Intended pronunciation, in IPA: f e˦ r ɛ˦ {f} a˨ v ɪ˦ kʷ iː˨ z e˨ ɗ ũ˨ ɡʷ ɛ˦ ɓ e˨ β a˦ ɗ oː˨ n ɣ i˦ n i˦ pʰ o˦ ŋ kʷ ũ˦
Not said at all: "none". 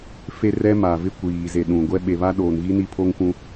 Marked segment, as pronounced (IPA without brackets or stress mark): m